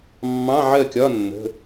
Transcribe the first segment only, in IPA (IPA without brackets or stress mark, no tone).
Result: mː